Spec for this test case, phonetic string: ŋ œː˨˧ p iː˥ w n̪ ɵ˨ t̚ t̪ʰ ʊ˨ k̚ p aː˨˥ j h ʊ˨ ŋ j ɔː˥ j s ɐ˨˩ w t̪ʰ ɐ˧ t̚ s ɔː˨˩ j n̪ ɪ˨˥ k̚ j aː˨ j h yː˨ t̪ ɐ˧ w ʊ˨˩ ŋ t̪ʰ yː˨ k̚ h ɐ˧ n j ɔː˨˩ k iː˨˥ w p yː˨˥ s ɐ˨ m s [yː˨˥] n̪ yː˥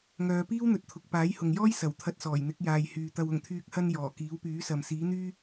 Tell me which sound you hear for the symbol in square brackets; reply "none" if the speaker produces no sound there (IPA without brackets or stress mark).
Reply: iː˨˥